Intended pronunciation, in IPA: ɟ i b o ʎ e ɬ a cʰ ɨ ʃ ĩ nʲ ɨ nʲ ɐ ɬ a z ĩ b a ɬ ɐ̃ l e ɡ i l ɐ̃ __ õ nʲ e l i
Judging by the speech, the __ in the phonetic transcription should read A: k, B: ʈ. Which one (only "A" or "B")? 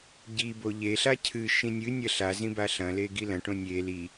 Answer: B